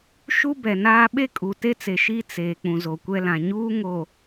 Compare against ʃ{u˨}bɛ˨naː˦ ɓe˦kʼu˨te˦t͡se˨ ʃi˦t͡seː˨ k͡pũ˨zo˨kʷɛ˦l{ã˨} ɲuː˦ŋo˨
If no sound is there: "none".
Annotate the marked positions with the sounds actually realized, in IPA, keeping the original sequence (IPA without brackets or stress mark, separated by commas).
u˦, ã˨